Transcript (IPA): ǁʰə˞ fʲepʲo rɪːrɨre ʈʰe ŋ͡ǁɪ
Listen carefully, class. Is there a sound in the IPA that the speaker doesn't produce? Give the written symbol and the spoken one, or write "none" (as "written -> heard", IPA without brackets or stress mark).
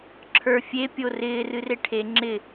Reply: none